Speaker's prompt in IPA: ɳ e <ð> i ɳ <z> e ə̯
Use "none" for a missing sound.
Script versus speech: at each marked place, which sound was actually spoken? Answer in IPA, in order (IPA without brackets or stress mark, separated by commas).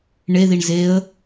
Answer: ð, z